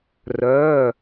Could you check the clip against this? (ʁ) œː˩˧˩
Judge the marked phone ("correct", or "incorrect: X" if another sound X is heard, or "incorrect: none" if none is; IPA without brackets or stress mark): incorrect: r